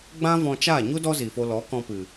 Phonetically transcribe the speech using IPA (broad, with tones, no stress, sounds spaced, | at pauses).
ɡ͡b ã˦ v ɔ̃˧ t͡ʃ aː˦˨ ɲ u˦ d ɔ˦ z i˨ f o˧ l ɔ˨˦ k ɔ̃˧ p ɨ˨